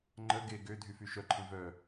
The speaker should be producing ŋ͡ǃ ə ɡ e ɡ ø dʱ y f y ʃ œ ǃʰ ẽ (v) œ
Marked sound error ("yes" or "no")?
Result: no